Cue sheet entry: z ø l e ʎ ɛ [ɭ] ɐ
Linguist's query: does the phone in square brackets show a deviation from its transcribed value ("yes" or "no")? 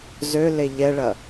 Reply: no